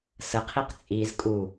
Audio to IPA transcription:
s ə qʰ i q t͡sʼ i z kʼ u

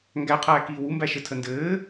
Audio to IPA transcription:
ŋ ɡ æ qʰ æː k iː w u m b æ ʃ ɘ tʰ ə n d ɘː

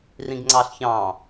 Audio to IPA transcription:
r ĩ ɡ ŋ͡ǀ ɑ ɬ ç ɑ̃

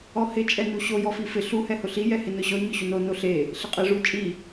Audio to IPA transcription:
ɔ h ɪ t͡ʃʼ ɛ n u ɕ o j ɔ f i f ɪ ɬ u h ɛ h ʊ ɬ i j ɛ h ɪ n ʊ ɕ ɔ ɲ ʊ ɕ u n o n o ɬ e | ɬ ɪ qʼ e ʐ u t͡ʃʼ i

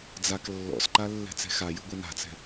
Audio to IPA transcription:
d͡z a k lː ɔ̰ s ǃ a lː ɛ̤ t͡s ɛ̤ x a j ɯ ɡʷ ɛ n a̤ t͡s ɛ̤

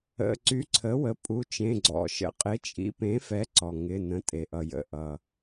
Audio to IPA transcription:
ə̰˩˧˩ ǀ y˩˥ ǀʰ ə˩˥ w ə˩˧˩ pʼ u˩˧˩ t͡ʃ ẽ˩˧˩ ɡ͡ǀ ɔ̰˩ ʃ ə̰˩˥ qʼ ɪ˩˥ t͡ʃʼ ḭ˩˥ p ẽ˩˥ f ɛ˩˥ ǀ ɔ˩ ŋ ɪ˩˧˩ n ə̃˩˥ tʼ e˩ ʔ ʌ˩ j ə̰˩˧˩ ʔ ʌ˩

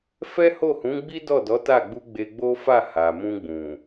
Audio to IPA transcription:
f ɛ˦ h o˦˨ h ũ˨˦ ɡ͡b i˦ d ɔ˦˨ d ɔ˨˦ t a˦˨ ɡ͡b u˧ ɡ͡b e˧ ɡ͡b o˦ f a˦˨ h a˨ m ũ˧ ɡ͡b ũ˨

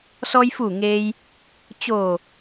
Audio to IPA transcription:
s ɔː˧ j f uː˧˩ ŋ eː˧ j | t͡ɕ oː˧˩

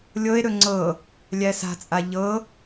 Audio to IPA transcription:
lʲ ɤ e̯ ɾ ɵ ŋ͡ǀ ɤ | lʲ æ s a̤ t͡sʼ a ʎ ɤ

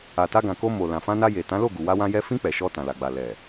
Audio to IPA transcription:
a˨ t a˧ ɡ ã˨ k o˧ m o˨ l ã˨ f ã˧ n a˧ j e˨ t ã˨˦ l o˦˨ ɡ u˨ w a˧ w ã˧ j ɛ˧ f ĩ˧ k͡p ɛ˨ ʃ ɔ˧ t ã˨ l a˨ ɡ͡b a˨ l ɛ˨

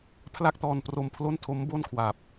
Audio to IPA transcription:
pʰ l a˥˩ k̚ t ɔː˧ n p r o˧ m pʰ l o˥˩ n tʰ o˦˥ m b o˥˩ n kʰ w a˨˩ p̚

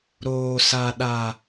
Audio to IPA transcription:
ɾ oː˨ s a˨ ɗ a˨

